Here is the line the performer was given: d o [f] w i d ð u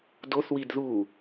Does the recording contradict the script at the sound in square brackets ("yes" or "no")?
yes